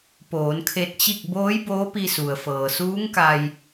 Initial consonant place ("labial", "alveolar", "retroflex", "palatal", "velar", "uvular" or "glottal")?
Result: labial